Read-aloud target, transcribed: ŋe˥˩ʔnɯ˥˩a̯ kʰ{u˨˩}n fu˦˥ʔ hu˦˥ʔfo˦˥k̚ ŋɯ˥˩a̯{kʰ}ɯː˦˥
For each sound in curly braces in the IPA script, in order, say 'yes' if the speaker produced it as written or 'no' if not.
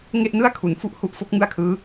no, yes

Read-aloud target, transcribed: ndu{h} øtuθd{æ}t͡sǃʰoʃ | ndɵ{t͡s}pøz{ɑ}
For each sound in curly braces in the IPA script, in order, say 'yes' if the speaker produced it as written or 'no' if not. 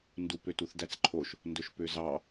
no, yes, no, yes

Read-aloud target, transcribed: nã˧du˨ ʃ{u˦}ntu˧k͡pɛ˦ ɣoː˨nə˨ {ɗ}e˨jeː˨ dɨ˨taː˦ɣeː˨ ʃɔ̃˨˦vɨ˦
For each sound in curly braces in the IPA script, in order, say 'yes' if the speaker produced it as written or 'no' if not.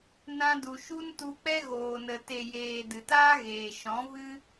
yes, no

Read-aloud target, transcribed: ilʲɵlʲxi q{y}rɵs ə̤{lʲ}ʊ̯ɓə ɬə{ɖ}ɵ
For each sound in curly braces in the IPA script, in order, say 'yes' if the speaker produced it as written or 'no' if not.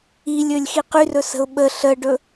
yes, no, yes

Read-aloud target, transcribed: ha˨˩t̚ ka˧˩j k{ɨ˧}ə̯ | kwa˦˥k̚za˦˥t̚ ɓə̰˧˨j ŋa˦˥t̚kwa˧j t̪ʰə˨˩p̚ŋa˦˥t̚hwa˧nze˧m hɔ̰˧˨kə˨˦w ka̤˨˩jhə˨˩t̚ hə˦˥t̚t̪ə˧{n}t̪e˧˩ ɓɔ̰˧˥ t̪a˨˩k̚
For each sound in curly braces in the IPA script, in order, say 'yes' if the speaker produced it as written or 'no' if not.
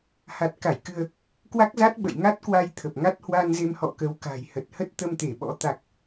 yes, no

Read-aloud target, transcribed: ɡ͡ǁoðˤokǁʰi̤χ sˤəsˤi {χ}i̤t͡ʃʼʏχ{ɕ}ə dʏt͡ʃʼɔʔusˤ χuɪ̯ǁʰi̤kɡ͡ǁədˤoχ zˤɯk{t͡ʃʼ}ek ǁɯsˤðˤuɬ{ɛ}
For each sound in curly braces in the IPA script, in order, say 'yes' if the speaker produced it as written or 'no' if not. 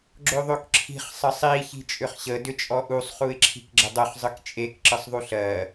no, yes, yes, no

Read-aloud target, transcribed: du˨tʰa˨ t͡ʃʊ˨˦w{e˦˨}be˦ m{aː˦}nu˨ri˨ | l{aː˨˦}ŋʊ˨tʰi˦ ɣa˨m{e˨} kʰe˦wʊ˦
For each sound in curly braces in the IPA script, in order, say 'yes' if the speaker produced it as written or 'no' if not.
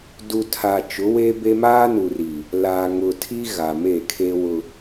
no, yes, no, no

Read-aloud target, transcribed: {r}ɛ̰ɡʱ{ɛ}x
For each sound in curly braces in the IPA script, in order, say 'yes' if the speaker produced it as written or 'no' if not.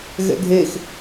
no, no

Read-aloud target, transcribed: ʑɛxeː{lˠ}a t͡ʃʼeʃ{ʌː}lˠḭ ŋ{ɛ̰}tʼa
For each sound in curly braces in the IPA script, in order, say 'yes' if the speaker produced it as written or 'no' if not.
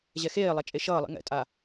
yes, yes, yes

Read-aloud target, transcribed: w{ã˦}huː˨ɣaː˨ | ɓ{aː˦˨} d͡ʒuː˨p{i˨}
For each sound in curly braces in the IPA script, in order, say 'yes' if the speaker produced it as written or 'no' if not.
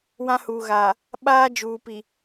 yes, no, yes

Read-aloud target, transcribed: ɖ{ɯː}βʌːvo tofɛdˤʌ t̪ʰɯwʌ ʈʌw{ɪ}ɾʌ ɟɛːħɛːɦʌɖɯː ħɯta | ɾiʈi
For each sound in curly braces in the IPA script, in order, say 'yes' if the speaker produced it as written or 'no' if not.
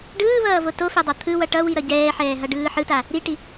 yes, no

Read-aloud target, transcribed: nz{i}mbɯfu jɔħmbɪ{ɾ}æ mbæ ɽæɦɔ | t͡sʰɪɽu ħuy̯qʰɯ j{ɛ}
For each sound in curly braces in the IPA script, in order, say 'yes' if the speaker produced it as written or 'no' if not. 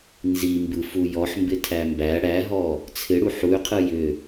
yes, no, no

